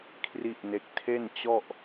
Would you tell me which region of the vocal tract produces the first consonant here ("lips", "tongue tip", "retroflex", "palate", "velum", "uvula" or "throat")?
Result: velum